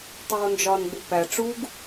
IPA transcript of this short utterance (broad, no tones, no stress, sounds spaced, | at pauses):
tˤ oː n d͡ʒ ɒ n ɡ͡b u p æ ʈ͡ʂ u ɡ